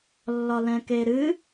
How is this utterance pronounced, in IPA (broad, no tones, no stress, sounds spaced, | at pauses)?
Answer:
lː ɒ l ɛ̃ k e ɾ ɨ